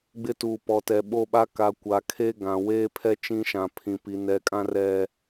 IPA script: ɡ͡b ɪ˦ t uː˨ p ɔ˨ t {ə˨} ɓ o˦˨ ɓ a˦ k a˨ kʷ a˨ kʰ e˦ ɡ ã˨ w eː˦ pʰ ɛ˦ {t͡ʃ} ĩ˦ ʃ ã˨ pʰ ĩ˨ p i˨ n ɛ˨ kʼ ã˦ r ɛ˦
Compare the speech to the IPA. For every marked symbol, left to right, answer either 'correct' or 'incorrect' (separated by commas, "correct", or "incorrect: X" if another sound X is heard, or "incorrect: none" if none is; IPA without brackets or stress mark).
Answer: incorrect: ɛ˨, correct